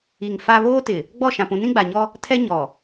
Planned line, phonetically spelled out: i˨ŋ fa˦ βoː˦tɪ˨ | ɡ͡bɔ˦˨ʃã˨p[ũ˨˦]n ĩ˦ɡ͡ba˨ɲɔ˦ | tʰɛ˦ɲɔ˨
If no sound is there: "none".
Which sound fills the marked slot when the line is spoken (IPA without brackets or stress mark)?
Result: ũ˨˦